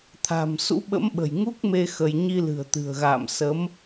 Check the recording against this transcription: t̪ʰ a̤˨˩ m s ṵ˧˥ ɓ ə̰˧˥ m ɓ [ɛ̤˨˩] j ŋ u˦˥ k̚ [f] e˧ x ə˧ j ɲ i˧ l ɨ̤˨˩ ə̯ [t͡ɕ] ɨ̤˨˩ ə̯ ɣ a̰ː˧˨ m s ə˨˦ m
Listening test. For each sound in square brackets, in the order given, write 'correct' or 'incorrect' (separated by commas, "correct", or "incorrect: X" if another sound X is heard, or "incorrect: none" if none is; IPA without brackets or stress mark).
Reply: incorrect: ə̤˨˩, incorrect: m, incorrect: t̪